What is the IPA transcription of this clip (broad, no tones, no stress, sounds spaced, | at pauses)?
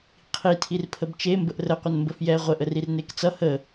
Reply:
qʰ i tʰ i r pʰ ə b t͡ʃ e m b ə ʔ r ə qʷ ə n m b ə f j ɛ ʁʷ ə ʔ ə r i r n e k t͡s ʌ h ə